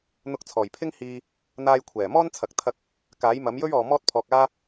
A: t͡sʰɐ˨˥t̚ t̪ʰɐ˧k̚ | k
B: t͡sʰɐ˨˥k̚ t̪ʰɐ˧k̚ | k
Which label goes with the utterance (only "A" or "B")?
B